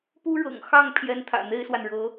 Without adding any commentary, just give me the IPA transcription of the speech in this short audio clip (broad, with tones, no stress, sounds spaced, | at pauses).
p u˥ ɻ ɤ̰˨˩ ŋ x ɑ˥˩ ŋ pʰ j ɛ˥ n t̪ʰ ä̰˨˩ n̪ e˥ ɪ̯ s w a˨ n ɻ ɤ˧˥